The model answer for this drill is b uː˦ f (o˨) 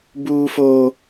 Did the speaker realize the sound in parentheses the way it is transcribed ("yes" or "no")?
no